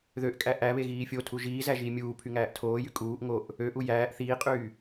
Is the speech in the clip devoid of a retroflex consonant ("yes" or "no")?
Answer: yes